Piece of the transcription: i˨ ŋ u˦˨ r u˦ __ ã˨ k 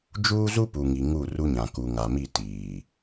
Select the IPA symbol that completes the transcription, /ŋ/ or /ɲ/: ɲ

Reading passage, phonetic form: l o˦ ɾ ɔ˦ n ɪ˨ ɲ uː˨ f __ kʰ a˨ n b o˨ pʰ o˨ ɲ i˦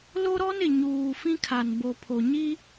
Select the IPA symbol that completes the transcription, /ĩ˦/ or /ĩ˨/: ĩ˦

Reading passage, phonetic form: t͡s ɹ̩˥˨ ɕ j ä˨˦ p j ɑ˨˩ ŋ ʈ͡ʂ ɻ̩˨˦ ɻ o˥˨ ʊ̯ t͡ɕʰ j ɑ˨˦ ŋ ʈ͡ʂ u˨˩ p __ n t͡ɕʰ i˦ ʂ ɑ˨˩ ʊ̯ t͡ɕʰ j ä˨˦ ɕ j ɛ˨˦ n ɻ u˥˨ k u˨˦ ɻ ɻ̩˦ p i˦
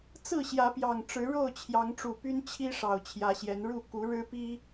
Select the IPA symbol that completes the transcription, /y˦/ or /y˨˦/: y˦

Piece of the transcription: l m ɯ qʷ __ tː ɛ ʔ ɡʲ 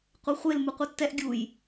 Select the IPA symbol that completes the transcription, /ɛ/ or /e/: ɛ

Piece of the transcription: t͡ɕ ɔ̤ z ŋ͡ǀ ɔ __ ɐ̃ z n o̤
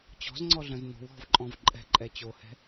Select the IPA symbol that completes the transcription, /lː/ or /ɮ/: ɮ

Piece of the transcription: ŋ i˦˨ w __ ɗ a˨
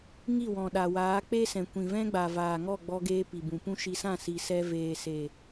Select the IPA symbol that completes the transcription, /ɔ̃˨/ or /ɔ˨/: ɔ̃˨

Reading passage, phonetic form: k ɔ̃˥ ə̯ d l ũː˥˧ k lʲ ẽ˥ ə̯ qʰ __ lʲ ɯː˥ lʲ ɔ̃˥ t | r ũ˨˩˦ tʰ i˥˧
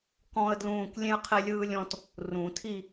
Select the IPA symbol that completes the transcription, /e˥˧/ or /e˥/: e˥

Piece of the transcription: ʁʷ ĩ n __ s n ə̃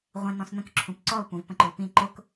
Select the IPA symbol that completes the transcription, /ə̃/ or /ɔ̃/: ɔ̃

